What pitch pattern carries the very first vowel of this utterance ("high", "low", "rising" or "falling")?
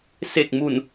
low